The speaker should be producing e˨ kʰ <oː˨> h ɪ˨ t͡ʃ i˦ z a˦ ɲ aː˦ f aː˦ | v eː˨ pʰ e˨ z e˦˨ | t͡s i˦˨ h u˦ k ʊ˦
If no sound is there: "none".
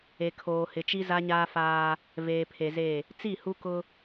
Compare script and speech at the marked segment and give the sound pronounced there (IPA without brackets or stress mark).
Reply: oː˨